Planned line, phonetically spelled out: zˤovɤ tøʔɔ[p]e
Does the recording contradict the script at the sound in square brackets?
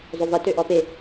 no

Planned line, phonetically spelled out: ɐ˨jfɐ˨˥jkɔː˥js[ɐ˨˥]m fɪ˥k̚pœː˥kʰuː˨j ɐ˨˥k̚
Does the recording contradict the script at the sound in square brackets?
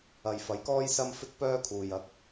yes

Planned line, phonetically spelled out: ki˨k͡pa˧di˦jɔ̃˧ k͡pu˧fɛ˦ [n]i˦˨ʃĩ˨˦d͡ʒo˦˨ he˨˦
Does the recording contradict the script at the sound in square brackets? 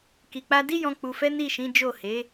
no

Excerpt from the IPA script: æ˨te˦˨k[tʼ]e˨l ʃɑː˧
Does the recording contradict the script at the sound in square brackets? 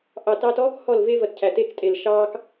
no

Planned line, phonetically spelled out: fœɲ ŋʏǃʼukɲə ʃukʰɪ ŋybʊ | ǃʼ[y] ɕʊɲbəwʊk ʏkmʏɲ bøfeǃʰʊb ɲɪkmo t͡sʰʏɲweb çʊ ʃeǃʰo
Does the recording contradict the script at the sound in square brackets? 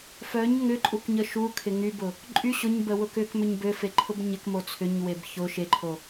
no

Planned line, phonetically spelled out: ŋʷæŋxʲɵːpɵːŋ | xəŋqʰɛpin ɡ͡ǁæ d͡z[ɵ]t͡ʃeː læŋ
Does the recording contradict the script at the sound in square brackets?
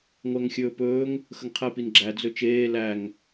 no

